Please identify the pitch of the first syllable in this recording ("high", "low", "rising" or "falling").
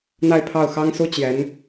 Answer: falling